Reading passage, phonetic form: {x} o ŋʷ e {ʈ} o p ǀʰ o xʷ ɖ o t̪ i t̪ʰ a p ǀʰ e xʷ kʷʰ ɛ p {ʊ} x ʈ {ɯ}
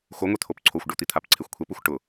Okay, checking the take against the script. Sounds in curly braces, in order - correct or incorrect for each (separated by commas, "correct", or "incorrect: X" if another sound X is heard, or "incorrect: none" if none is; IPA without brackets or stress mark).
correct, incorrect: t̪ʰ, incorrect: u, incorrect: ʊ